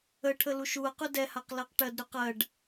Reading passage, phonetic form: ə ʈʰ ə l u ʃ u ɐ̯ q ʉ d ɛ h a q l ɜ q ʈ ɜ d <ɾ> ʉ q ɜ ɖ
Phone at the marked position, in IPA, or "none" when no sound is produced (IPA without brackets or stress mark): ɾ